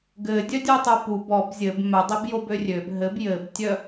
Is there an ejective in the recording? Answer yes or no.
no